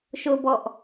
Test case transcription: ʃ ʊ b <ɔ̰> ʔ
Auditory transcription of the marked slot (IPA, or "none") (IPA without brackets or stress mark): ɔ